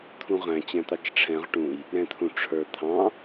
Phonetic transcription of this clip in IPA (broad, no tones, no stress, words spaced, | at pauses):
t̪ʰũʁæ̃ t͡ɕæ̃t̪ɑt͡ʃʈ͡ʂʰɛ̃ʁ ʈũj | ɾɛ̃t̪ʰũʈ͡ʂʰə˞ t̪ʰɑ̃